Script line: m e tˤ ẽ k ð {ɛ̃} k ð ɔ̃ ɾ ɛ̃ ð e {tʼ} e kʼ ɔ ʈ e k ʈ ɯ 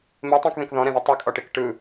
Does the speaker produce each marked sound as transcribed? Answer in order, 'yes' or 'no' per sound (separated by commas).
no, no